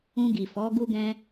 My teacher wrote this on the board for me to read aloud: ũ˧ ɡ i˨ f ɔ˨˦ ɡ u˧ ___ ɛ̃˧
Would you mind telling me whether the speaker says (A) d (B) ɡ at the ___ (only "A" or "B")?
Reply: B